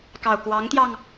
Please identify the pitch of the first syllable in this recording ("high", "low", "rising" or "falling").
low